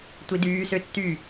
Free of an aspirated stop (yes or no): yes